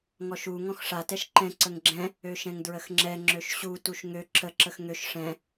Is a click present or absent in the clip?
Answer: present